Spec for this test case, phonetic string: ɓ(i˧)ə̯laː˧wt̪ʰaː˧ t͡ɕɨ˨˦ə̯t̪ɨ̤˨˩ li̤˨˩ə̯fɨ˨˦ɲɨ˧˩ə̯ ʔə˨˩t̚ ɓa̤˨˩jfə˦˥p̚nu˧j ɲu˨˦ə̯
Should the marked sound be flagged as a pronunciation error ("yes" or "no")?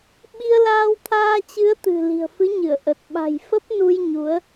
no